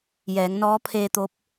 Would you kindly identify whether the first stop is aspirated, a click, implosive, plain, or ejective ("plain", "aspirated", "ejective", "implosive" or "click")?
aspirated